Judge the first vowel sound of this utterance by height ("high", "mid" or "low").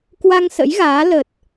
low